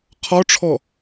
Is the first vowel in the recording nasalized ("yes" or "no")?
no